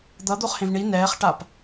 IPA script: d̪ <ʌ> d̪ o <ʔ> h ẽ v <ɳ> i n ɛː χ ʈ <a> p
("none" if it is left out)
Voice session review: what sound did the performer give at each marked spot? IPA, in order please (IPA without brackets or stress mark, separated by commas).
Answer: ʌ, χ, ɳ, a